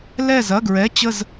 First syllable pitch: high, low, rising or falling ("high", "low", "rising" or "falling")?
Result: falling